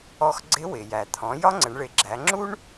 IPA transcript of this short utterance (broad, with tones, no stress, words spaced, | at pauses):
ɔ˧xɡ͡ǀɪ˧˥ wɪ˩jæ˩t̪ʰɔ̃˩˧ jɒ˥ŋ͡ǀə˩˧ɳɭɪ˩˧ɡ͡ǁæ˩˧ ŋ͡ǁu˥ɳ